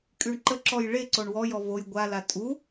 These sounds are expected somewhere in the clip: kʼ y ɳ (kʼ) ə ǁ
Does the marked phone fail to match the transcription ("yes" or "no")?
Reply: yes